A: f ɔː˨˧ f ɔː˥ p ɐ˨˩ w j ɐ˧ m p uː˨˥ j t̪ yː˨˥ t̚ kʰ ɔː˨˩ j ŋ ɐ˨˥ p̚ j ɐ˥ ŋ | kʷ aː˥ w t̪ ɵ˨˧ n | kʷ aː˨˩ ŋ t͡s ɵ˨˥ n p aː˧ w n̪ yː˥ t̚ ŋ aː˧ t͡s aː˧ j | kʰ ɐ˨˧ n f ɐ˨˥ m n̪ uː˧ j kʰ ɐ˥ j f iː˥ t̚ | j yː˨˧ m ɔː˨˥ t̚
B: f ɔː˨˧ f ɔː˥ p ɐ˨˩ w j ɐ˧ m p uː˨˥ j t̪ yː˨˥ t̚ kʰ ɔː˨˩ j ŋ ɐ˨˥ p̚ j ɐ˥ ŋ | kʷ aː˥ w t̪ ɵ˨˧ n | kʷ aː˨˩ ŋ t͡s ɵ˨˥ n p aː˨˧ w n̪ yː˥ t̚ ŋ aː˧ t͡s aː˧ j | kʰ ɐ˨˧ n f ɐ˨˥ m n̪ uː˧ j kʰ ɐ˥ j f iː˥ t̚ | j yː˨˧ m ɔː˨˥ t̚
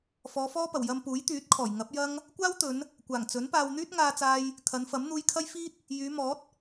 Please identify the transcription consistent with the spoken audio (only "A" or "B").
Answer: A